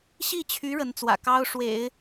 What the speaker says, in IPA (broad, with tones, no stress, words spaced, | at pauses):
ɕi˥˩t͡ɕʰy˧˥ ɻə˧˥nt͡swä̰˨˩ kɑ˥ʊ̯ʂwḛ˨˩˦ɪ̯